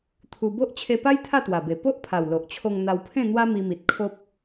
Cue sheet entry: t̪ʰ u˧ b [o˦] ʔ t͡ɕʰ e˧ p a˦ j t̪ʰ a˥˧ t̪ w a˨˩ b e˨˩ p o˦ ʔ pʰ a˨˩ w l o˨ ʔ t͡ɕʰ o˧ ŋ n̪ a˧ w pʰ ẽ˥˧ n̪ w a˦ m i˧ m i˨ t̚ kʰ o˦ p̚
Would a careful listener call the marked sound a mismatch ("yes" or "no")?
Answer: no